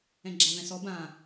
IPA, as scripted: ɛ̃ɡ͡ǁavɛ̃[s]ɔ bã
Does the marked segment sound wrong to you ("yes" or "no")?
no